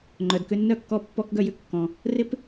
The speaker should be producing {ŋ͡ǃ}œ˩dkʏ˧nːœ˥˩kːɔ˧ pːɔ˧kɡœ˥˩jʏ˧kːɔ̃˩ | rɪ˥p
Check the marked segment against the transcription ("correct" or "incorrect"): correct